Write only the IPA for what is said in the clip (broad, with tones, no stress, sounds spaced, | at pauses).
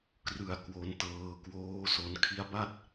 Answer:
k r ɯ˨˩ a̯ k w o˧ n t ɤː˧ k w oː˦˥ s o˧ n kʰ i˦˥ a̯ b a˥˩ t̚